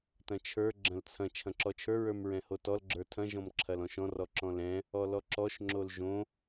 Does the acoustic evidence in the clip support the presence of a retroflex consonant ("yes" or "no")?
no